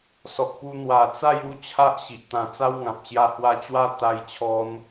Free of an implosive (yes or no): yes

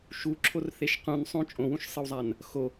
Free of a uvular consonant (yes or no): no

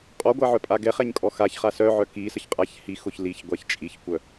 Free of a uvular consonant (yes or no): no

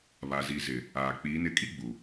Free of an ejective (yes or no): no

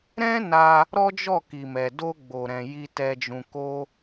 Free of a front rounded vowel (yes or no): yes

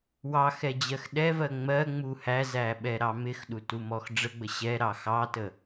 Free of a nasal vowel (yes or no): yes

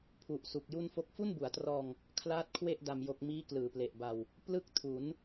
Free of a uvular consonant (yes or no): yes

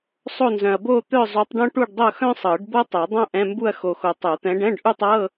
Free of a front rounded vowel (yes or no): no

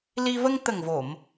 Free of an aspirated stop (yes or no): yes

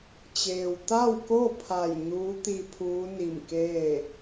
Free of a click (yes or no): yes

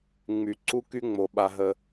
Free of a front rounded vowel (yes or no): no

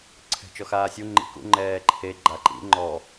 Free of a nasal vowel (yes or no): yes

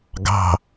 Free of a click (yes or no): yes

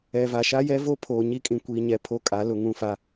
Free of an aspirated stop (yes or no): no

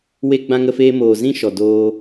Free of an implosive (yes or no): yes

